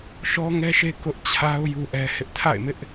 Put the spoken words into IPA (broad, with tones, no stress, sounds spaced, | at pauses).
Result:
ʃ ɔ˦ ŋ ɛ˦ ʃ e˦ k ʊ˦ ʔ t͡ɕʰ a˦ ʊ̯ j u˦ ʔ ɛ˦ h ɪ˦ ʔ tʰ a̰˦˨ ɪ̯ m ɪ˦ ʔ